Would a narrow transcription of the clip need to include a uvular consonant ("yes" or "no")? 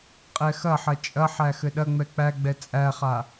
yes